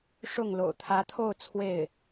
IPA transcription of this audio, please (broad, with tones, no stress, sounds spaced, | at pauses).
ʂ ʊ˥˩ ŋ l o̰˨˩ ʊ̯ t̪ʰ ä˧˥ t̪ʰ o˥˧ ʊ̯ t͡sʰ w e˥˩ ɪ̯